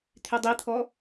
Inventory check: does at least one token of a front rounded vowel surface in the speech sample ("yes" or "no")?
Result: yes